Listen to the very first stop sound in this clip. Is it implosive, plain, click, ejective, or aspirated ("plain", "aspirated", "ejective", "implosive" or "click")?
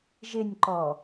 click